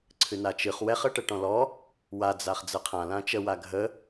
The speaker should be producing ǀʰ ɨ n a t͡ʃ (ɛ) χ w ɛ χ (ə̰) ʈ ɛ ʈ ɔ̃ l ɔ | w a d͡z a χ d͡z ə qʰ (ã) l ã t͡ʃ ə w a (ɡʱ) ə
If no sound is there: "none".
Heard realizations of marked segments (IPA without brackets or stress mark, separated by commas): ɨ, ə, ã, ɡʱ